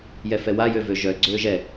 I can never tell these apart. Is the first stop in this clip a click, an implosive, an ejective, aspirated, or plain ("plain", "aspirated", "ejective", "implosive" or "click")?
click